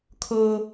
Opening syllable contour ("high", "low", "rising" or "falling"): high